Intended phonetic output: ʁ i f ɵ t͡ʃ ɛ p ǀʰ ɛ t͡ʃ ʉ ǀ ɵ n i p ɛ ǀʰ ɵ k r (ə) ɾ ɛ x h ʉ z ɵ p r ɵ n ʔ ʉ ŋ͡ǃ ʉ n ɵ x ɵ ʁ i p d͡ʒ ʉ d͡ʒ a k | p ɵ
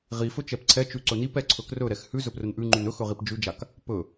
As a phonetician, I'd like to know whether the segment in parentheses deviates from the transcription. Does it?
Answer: yes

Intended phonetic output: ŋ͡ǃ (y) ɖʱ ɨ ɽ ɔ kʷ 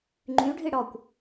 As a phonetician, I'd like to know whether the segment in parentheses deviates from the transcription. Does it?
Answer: no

